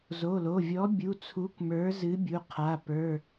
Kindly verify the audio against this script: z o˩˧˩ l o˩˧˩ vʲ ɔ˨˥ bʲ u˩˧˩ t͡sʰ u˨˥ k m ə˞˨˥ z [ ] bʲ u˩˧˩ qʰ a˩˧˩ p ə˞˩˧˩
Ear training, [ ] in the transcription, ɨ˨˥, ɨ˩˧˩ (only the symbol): ɨ˨˥